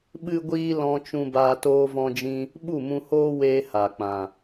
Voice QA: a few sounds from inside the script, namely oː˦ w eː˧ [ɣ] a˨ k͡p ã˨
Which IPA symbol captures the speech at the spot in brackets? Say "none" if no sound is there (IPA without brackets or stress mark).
h